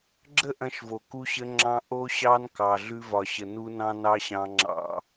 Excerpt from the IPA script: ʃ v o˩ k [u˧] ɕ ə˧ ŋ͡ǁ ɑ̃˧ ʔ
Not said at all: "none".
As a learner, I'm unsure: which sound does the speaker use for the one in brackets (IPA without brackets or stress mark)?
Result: u˧